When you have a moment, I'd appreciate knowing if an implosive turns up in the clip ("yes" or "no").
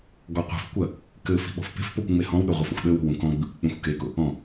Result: yes